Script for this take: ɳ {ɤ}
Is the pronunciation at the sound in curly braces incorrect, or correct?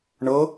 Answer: correct